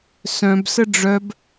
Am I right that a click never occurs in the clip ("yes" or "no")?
yes